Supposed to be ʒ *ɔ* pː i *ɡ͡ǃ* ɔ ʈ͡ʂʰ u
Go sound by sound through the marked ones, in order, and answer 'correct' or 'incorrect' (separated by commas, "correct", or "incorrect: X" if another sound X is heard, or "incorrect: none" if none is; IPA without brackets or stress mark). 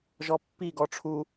correct, incorrect: ɡ